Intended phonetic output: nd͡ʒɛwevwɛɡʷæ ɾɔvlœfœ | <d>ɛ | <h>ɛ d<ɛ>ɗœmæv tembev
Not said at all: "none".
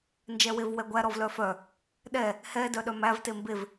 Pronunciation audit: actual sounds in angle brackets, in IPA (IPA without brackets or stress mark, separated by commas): ɗ, h, œ